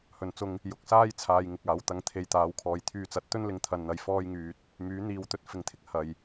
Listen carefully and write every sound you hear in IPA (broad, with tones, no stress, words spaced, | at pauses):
hɵ˨nt͡sʊ˧ŋ | jʊ˨˥k̚saː˥jt͡sʰaː˨j ŋɪ˧k̚aː˨˥wt̪ɐ˧ŋ t̪ʰe˨˧jt̪aː˨˥wkʰɔː˨j t̪ʰyː˧t͡sɐ˨˥t̚ t̪ɵ˥nlɪ˨˧ŋt̪ʰɐ˨nn̪ɐ˨j fɔː˥jŋyː˧t̚ | myː˨˥n̪iː˨˧wt̪ɵ˨t̚ fɪ˨ŋt̪ʰɪ˧k̚ hɐ˨˩j